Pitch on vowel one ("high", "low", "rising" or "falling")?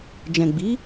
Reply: low